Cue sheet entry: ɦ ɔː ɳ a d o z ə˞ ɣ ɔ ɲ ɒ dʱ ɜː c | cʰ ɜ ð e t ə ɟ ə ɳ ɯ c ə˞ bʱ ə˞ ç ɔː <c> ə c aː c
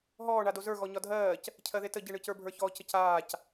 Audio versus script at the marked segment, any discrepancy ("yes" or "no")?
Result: no